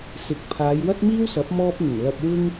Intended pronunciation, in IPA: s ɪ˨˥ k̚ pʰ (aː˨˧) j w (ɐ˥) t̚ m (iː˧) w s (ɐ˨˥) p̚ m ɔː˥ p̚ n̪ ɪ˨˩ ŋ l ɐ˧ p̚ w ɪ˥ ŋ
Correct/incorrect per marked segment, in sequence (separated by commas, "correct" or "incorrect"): correct, correct, incorrect, correct